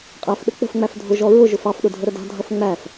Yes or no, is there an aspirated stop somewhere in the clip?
no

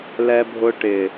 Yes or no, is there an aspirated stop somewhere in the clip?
no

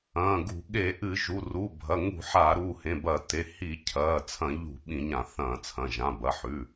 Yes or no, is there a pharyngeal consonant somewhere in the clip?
yes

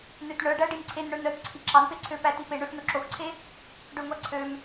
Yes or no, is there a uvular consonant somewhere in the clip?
no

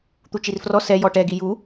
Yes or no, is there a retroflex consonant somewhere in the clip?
yes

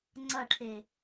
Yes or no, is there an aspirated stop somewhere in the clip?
yes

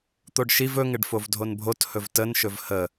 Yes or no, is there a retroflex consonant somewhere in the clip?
yes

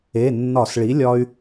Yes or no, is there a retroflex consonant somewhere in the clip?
yes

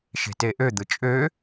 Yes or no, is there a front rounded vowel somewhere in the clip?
yes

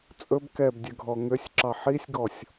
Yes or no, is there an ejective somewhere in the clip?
yes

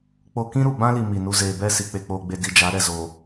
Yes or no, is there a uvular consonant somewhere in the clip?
no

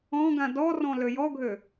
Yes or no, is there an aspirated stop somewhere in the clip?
no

